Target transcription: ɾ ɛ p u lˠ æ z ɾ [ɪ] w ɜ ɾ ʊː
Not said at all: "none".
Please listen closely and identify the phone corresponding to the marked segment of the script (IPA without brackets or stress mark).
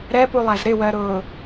ɪ